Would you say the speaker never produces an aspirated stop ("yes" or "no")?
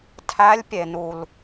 no